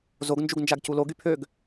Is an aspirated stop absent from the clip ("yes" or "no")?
no